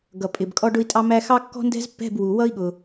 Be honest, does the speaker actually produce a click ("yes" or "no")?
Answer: no